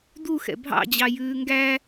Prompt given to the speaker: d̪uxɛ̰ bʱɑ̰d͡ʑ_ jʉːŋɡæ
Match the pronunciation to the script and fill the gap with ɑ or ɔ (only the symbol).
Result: ɑ